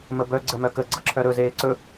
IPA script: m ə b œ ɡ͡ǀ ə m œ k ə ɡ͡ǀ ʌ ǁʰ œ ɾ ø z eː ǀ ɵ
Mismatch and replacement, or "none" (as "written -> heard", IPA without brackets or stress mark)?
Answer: ø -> ɵ